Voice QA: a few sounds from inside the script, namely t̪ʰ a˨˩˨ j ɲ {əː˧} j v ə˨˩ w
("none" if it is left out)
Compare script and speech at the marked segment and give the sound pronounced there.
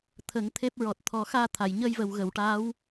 əː˧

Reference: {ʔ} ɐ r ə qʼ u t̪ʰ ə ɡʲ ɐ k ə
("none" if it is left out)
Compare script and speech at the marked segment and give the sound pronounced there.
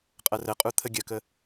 qʼ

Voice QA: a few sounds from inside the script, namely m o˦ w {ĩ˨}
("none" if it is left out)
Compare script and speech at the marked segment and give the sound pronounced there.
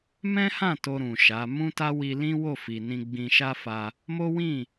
ĩ˦˨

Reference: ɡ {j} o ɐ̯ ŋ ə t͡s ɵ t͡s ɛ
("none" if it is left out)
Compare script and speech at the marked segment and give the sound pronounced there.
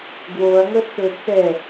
w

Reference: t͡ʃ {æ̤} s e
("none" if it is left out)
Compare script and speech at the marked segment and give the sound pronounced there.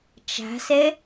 æ̤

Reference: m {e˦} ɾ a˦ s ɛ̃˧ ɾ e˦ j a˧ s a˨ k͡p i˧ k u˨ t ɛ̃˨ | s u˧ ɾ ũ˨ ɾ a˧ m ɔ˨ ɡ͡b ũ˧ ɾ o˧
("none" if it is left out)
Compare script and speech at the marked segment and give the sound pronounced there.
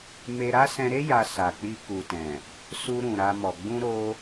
e˧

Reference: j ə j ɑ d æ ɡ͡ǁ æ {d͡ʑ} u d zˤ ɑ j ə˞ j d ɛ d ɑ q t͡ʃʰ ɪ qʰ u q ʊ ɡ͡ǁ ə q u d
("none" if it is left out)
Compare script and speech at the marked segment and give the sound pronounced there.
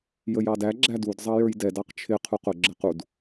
d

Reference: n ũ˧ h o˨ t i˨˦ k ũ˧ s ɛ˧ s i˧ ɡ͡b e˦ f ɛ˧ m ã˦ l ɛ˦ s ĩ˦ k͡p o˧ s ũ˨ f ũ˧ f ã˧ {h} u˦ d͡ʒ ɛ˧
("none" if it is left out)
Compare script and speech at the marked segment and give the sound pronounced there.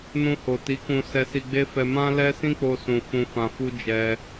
f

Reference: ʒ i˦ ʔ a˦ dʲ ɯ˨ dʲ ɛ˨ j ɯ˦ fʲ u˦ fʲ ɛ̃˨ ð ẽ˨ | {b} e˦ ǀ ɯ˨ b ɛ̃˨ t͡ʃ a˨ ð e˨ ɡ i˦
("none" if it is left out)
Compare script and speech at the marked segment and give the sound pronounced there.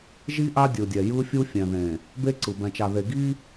b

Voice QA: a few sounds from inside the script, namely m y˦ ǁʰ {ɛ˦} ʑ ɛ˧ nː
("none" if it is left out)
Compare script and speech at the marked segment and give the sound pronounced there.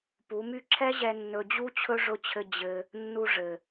ɛ˦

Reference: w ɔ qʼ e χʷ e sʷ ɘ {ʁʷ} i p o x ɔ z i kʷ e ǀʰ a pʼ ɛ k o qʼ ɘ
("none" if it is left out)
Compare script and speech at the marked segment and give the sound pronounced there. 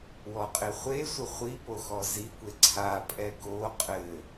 χʷ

